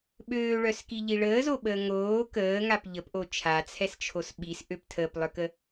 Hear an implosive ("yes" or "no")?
yes